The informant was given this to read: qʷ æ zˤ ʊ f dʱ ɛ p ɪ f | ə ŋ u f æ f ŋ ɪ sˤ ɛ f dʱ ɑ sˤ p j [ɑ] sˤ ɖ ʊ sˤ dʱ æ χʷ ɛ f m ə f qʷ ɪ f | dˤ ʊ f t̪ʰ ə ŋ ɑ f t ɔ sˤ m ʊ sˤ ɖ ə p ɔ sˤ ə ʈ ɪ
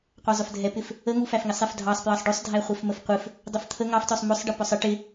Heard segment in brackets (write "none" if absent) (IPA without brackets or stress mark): ɑ